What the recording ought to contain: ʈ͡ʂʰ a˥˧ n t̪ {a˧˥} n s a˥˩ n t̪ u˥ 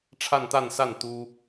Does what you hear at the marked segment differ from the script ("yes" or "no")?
yes